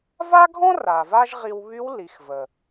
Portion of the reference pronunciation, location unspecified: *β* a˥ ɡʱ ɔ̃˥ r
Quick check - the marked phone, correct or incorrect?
incorrect